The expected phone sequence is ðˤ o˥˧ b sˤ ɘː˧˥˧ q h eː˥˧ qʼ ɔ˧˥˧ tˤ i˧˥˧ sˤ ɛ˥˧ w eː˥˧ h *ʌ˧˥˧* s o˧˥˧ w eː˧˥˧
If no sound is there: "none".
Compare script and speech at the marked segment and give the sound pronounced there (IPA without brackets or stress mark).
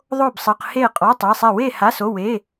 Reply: a˧˥˧